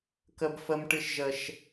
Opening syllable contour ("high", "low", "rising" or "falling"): high